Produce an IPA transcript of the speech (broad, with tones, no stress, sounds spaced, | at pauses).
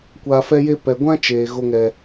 kʷ aː˧ f ɛ˦ j e˦ p ɛ˨ ɡʷ ã˦ t͡ʃ eː˨ ɣ o˦ ŋ ɛ˦